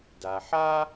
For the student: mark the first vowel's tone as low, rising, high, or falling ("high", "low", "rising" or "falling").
low